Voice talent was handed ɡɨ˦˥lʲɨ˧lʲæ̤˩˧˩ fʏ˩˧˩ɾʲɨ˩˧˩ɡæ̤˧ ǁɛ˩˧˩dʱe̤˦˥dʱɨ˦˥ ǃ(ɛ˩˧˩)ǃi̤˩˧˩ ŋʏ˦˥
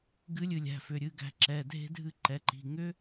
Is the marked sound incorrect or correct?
correct